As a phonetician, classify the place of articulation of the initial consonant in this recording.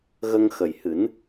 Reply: velar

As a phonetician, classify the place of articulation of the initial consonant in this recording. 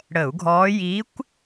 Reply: retroflex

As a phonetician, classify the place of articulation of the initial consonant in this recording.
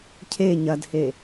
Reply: palatal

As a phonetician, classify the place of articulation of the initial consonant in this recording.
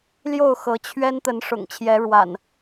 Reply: alveolar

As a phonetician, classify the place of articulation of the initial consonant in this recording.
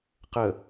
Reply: uvular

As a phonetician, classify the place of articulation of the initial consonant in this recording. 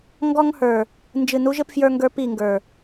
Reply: velar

